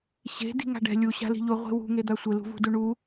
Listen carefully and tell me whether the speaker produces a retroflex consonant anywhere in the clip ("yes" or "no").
yes